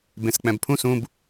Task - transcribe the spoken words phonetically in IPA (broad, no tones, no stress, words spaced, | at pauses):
bẽsk͡pɛ̃bpʰũs ũb